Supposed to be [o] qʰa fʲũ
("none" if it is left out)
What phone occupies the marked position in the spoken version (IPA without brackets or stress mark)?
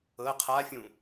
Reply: ɤ